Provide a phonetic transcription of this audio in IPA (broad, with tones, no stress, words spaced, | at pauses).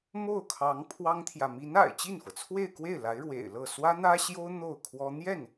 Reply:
mo˥˩ʊ̯kʰɑ˧˥ŋ pʰwɑ˥ŋt̪ʰjä˨ mi˧˥na̰˨˩ɪ̯ t͡ɕi˥˩nfɤ˩ t͡sʰwe˥˧ɪ̯kwe˥˩ɪ̯ la˧˥ɪ̯ɻwḛ˨˩ɪ̯lɤ˥˩ swä˥n̪ä˥ɕjo˥ʊ̯ n̪o˥˩ʊ̯kʰwɔ˥ n̪jɛ˥˩n